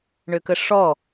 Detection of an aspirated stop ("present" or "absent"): absent